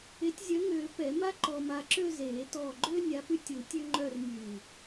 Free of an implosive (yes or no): yes